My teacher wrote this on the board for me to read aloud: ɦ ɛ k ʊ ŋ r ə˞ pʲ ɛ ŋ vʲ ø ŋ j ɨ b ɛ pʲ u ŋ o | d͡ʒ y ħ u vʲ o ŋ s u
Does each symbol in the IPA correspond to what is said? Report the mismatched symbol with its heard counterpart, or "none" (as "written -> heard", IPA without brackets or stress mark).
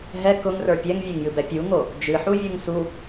y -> ɨ